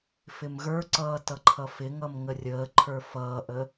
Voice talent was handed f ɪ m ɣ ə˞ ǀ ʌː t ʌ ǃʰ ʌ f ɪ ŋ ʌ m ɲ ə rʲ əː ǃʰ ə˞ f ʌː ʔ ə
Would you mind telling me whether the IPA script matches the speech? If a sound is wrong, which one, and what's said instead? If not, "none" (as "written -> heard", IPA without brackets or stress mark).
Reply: ɲ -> ŋ